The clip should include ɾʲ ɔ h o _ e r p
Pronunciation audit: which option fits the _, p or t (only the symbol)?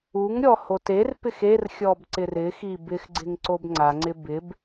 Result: t